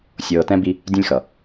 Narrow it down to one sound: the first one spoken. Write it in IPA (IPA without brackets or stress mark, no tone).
sʲ